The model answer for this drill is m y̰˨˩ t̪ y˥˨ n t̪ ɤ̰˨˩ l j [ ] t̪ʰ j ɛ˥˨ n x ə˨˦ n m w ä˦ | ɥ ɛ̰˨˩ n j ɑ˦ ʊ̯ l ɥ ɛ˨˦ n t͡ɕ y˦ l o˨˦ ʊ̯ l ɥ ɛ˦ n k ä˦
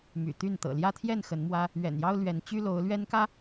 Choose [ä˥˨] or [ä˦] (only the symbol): ä˦